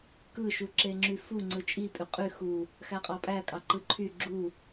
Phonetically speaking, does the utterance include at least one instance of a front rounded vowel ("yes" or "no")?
yes